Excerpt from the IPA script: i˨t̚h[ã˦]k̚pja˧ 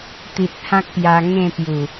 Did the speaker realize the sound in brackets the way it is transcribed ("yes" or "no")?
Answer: yes